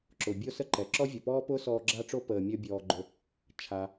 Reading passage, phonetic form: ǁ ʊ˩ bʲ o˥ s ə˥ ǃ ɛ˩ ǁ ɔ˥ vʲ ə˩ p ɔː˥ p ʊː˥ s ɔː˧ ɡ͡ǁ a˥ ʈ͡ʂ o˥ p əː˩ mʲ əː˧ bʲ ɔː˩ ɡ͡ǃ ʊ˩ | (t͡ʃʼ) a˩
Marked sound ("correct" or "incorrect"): incorrect